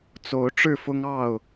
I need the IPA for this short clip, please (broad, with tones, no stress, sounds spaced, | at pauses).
t͡s o˨˦ ʊ̯ ʈ͡ʂ ɻ̩˥˨ f ʊ˦ ŋ ɑ˥˨ ʊ̯